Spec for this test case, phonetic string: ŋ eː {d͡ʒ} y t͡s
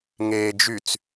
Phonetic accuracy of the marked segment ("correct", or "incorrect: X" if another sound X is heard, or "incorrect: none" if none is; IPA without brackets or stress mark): correct